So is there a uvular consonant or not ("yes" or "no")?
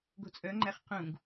yes